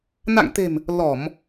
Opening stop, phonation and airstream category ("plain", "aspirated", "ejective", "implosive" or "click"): plain